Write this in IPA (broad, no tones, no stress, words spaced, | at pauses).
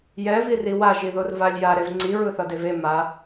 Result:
jɛviri waʒiðor valʲja ɾevŋ͡ǀi ɹɯθʌdeve ma